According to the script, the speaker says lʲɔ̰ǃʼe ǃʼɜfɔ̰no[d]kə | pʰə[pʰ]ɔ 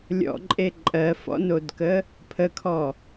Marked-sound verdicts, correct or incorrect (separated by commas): correct, incorrect